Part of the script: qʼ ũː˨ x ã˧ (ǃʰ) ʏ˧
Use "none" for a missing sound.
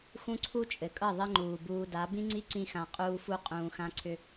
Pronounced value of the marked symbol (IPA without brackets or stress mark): ǀʰ